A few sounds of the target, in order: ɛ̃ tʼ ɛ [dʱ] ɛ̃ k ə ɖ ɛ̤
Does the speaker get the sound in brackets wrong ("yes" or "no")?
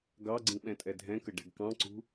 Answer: no